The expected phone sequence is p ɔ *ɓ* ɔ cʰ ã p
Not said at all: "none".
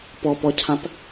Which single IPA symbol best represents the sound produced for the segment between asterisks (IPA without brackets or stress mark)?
p